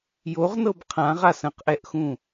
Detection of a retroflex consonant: absent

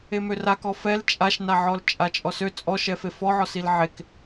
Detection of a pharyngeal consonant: present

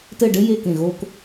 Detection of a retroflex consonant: present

